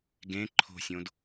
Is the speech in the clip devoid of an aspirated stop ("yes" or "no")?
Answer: no